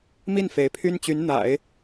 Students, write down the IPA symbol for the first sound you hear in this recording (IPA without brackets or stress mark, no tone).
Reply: m